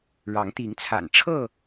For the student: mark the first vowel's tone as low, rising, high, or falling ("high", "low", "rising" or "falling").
rising